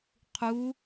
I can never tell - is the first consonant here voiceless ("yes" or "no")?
yes